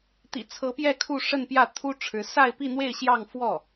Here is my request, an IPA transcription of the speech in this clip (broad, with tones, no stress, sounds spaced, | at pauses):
t̪ ḭ˨˩ t͡sʰ ɤ˧˥ p j ɛ˥˧ kʰ u˥˧ ʂ ə˥˧ n p j ä˥˩ t̪ʰ u˥ ʈ͡ʂʰ ɻ̩˧˥ s a˥˧ ɪ̯ p i˥˧ n̪ w e˥˧ ɪ̯ ɕ j ɑ˥˧ ŋ f w ɔ˥˩